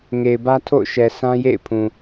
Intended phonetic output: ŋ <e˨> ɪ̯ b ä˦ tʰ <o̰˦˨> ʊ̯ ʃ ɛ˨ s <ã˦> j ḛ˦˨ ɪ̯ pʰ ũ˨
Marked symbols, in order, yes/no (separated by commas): yes, yes, yes